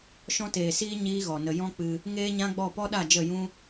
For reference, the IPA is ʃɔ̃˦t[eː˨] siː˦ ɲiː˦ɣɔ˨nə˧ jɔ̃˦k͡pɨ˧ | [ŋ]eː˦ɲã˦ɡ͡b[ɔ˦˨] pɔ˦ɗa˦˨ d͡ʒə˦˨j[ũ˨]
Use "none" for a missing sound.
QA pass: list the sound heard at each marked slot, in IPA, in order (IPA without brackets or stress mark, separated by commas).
eː˨, ŋ, ɔ˦˨, ũ˦